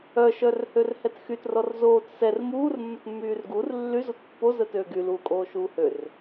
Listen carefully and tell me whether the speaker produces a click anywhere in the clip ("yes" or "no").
no